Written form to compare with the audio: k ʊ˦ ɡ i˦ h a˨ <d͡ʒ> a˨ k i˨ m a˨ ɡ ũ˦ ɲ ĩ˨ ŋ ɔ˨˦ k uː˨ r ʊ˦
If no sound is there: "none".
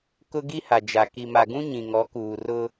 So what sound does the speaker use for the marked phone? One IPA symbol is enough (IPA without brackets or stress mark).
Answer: d͡ʒ